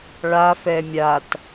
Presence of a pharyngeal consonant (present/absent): absent